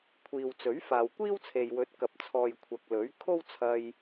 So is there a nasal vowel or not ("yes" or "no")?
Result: no